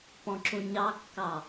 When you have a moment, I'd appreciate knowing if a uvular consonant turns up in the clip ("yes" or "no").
no